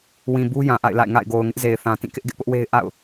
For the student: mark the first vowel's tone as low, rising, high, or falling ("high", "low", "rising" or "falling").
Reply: low